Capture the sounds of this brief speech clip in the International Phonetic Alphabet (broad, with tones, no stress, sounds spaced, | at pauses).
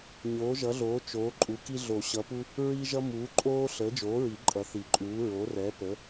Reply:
ɲ oː˨˥ ʒ ʌ˨˥ ɮ oː˨˥ t͡ʃ oː˨˥ ǃʼ u˨˥ k i˥ ɮ o˨˩˦ ɕ ʌ˨˥ p u˥ | ɹ i˥ ʒ ʌ˥ m uː˨˥ ǃʼ oː˥ ɬ əː˨˥ d͡ʒ oː˨˥ ɹ i˨˩˦ ǃʼ ʌ˨˥ θ i˨˩˦ ǃʼ uː˨˥ ɹ o˨˥ r ɛ˨˥ p ə˨˥